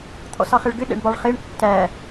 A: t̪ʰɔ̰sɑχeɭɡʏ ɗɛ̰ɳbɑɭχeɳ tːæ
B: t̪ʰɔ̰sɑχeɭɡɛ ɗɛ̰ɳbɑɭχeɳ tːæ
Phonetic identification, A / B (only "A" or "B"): A